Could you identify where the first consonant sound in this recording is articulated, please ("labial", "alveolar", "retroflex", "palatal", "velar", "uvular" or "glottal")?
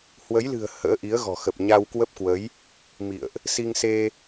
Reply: glottal